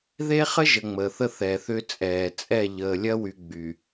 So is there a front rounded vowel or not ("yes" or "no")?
yes